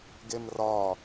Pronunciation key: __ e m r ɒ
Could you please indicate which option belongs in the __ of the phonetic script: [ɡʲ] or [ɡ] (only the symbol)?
ɡ